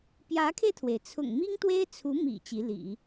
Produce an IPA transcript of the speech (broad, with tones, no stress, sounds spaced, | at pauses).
p j ä˧˥ kʰ e˧ ɪ̯ t̪ʰ w e˩ ɪ̯ t͡sʰ ʊ̰˨˩ ŋ m i˥ ŋ t̪ w e˥ ɪ̯ t͡sʰ u˧˥ m ḭ˨˩ t͡ɕ i˧˥ l ḭ˨˩˦